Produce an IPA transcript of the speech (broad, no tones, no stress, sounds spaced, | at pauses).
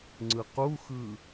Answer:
ŋ͡ǀ ɯ q u x ɯ